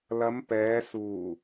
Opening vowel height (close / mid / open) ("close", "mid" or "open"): open